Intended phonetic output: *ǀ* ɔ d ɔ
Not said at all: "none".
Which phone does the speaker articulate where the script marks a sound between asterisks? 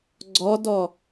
ɡ͡ǀ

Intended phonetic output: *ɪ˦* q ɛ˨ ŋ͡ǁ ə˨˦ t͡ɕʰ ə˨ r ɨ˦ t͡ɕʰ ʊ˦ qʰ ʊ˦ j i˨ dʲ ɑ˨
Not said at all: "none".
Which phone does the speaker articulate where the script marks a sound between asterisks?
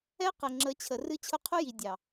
ɛ˦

